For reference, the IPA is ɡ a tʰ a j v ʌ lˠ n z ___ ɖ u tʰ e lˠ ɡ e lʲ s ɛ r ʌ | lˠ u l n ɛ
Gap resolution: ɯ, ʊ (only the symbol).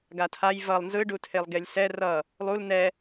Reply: ɯ